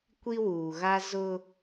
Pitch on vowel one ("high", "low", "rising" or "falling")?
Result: high